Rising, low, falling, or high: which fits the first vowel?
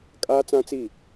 high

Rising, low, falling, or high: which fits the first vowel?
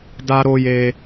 high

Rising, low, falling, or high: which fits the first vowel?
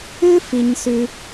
high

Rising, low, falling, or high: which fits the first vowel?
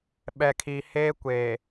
low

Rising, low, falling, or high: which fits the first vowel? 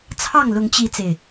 falling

